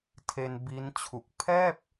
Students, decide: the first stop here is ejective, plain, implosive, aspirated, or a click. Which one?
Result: aspirated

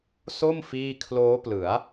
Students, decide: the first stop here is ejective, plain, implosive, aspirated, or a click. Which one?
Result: aspirated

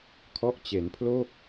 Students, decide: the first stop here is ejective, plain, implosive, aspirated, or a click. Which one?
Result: aspirated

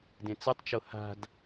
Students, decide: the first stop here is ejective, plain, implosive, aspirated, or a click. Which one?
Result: plain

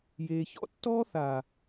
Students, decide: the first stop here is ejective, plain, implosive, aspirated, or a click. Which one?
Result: plain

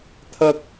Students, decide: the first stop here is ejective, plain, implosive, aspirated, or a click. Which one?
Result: aspirated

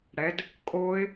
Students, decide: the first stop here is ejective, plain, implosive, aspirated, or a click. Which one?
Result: plain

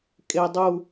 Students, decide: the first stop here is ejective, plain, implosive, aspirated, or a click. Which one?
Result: ejective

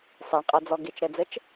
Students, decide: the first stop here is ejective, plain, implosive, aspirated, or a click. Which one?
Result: ejective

